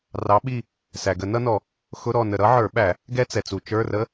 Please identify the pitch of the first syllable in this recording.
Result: rising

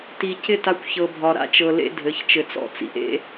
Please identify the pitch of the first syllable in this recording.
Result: low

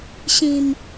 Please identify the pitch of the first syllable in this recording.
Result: low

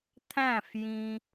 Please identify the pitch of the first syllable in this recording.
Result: falling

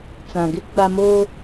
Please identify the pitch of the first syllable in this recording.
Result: low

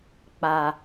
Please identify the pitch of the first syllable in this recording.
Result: low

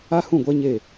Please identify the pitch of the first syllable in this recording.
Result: high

